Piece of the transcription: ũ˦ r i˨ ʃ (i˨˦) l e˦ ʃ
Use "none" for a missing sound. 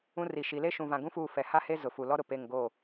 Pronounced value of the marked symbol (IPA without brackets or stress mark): i˨˦